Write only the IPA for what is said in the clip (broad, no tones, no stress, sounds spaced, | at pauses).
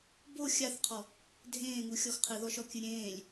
b o xʲ a θ qʰ ɔ | dʱ ẽː ŋ u xʲ ɔ x qʰ ɨ ð ɔ ʃ ɔ kʲ ɨ ɾʲ ẽː lʲ